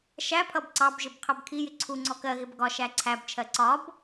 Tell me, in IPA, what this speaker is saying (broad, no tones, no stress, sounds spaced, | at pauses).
ʃ æ pʰ ʌ b ǀ ɑ b ʒ ɪ b qʰ ɜ b kʰ i j ɪ ǀʰ u ŋ͡ǀ ɔ k ɜ ɣ ɪ b ɡ ɒ ʃ æ ǀʰ æ b t͡ʃʰ ɜ ǀ ɒ b